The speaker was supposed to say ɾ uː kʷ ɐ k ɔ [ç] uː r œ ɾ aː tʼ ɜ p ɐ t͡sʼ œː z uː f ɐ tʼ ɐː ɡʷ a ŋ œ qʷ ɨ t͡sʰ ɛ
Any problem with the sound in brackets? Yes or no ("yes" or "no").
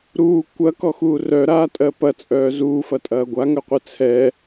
yes